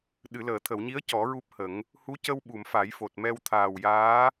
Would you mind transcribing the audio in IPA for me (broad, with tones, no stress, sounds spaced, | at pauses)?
ɗ ɨ˨˩˨ l əː˨˩˨ t̪ʰ ə˨˩˨ w ɲ i˧˥ ə̯ c ɔ˨˩˦ ɹ u˦˥ p̚ h ə˨˩˦ ŋ | h u˧˥ c ə˧ w ɓ u˨˩˨ m f a˨˩˦ j f o˨˩ t̚ m ɛ˧ w t̪ʰ aː˨˩ w j aː˧˥